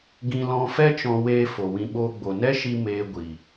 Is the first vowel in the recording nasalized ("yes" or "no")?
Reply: yes